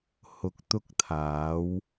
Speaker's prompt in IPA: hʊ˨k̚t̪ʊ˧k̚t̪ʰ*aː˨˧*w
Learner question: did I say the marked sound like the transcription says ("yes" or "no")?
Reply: yes